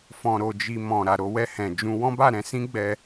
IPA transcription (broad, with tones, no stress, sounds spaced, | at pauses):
f ɔ̃˧ ɾ o˧ d͡ʒ i˧ m ɔ̃˨ ɾ a˨ ɾ o˧ w ɛ˧ h ɛ̃˨ d͡ʒ ũ˧ w ɔ̃˦ b a˦˨ ɾ ɛ̃˧ s ĩ˦ ɡ͡b ɛ˧